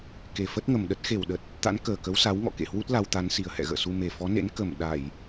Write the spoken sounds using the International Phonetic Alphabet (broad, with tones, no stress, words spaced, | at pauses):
ke˨˩fə˦˥t̚ŋə˨˩mɗə˦˥t̚ xe˧˩wɗə˨˩t̚ | t̪a̰˧˥n kəː˨˩ kə˨˦wsa˨˦wŋɔ̰˧˨ kḛ˧˨hwu˦˥t̚ la˧wt̪a˨˦n si˨˩ə̯hɛ̰˧˨ɣə̰ː˧˨su˧ me˨˩fɔ˨˦nḛ˧˥n kə˧˩m ɗa˧˩˨j